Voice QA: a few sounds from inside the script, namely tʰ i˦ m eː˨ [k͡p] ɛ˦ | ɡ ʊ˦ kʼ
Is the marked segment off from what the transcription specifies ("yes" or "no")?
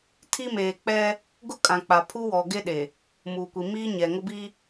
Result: no